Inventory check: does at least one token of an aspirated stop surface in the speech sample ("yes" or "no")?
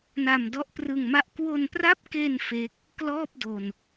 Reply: no